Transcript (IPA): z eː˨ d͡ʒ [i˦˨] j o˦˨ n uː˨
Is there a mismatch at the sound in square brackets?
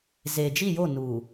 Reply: no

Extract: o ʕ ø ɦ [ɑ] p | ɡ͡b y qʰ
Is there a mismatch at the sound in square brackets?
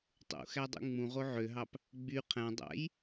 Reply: no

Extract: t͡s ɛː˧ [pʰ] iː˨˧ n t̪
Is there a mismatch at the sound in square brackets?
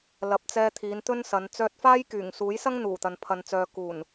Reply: yes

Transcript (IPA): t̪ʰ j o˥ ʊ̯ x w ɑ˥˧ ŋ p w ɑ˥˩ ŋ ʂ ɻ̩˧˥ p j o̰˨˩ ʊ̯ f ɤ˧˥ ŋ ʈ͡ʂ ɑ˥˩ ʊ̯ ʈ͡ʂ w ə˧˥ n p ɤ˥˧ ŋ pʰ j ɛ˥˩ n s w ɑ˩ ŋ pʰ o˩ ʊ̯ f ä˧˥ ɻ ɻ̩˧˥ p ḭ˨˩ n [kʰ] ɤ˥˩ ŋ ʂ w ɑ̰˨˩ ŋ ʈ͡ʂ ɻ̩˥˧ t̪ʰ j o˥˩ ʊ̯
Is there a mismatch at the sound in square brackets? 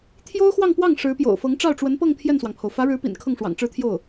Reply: no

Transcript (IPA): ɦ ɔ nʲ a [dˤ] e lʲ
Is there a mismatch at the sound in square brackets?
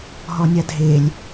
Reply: yes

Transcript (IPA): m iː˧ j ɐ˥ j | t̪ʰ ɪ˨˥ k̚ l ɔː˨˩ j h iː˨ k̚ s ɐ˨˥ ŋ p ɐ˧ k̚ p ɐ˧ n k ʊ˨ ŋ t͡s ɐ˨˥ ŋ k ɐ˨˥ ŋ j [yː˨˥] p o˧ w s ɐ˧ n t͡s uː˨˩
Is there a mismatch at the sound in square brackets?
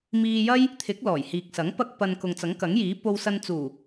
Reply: yes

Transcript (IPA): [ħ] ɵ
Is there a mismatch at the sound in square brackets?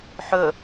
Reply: no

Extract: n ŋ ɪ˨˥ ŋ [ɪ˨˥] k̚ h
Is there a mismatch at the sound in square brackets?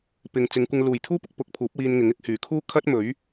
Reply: yes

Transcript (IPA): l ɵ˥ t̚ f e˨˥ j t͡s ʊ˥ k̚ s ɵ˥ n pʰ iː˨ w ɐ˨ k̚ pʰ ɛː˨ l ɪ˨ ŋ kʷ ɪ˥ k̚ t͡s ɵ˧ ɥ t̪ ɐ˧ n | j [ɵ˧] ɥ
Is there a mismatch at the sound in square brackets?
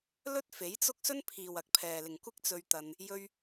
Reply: no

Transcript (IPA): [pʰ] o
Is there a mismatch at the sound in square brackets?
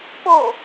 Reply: yes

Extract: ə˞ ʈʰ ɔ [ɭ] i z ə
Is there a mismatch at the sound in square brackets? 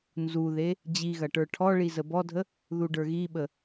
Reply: no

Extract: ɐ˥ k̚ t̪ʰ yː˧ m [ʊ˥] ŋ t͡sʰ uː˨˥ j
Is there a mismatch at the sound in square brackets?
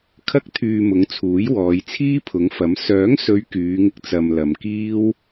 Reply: yes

